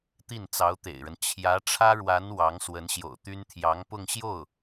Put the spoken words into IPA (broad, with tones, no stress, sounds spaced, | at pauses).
t̪ i˥˩ n t͡s ɑ˧˥ ʊ̯ t̪ ḛ˨˩ ɪ̯ ɻ ə˦ n t͡ɕʰ j ä˧˥ ʈ͡ʂʰ ä˥ ɻ w a˧˥ n w ɑ˧˥ ŋ s w ə˧˥ n ɕ j o̰˨˩ ʊ̯ t̪ y˥ n t̪ʰ j ɑ˧˥ ŋ p ʊ˥˧ ŋ ɕ j o˥˩ ʊ̯